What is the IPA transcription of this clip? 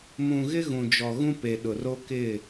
mũ˨ɣɪ˦ ɣũ˨d͡ʒɔ˨ɣũ˦ pe˨ɗʊ˨ ro˦kɪ˦˨

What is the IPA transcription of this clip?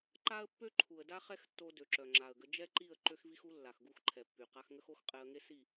ǃa˦ə̯ pːø˦ǃʰu˨ə̯da˦ χɛ˦xtːo˧ dø˨ǁœ˨ŋ͡ǁa˨ə̯ɡə˧ d͡ʒɛ˦ǃi˦˨ə̯ ǃø˦xvi˦xu˦ lːa˨xɡu˦˨xǃʰɛ˨pːy˨ qa˧xŋə˦xo˦x qʼɛ˧ə̯ŋe˦si˦˨

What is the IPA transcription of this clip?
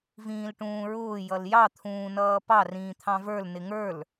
vĩːlʈũːɹʊː jʌljɑ t̪ʰũːnʌːpɑ rĩːt̪ʰɑ̃və˞l nɪŋə˞l

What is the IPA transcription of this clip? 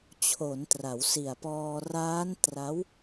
t͡ɕʰo˩˦ntra˩˦wsi˨˩a̯pɔː˧ raː˦˥n tra˦˥w

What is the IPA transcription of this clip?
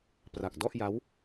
pra˨˩k̚dɔ˥˩ʔja˦˥w

